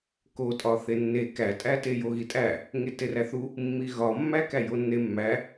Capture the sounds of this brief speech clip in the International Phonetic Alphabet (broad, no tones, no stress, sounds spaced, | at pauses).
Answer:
k o tʼ ɒ θ e nː e k æ tʼ æ t e j o ɣ i tʼ æ | ŋ e t e r æ θ u | mː i ɣ ɒ mː æ k æ j o nː e mː æ